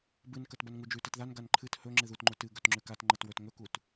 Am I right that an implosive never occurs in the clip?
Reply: yes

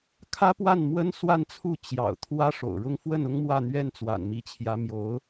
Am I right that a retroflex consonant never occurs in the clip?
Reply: no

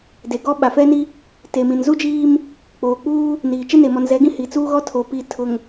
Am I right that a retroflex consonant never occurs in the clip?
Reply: yes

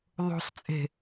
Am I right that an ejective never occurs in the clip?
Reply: no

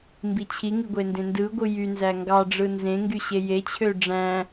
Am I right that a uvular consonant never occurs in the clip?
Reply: yes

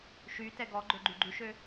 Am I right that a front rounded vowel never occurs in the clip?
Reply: no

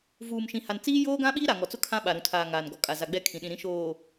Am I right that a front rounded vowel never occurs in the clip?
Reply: yes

